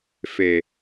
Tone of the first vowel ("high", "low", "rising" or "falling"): low